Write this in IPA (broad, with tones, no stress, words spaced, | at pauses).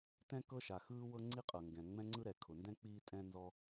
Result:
tɛ̃˥kɤ˥ʃa˩ xɯː˥wɤ˥ ŋ͡ǀi˥qʼɤ˩ŋɡɛ̃˩ ŋ͡mɛ̃˥ŋ͡ǀɯ˥ɾɛ˩ kʰʊ˩ndɛ̃˥ k͡piː˥tʼɛ̃˥nzɔ˥